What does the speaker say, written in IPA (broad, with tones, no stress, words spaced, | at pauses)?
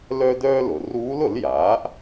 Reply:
lœ˥dœː˥lʊ˩˧ ruː˧˥lʊ˩˥l jaː˩˥ʔ